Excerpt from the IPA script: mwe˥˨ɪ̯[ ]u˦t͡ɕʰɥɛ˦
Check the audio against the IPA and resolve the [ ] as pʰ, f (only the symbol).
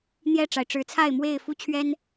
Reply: f